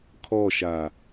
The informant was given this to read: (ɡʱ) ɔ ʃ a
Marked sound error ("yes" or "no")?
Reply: yes